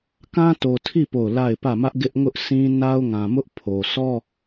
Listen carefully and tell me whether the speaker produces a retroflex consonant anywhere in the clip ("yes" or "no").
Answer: no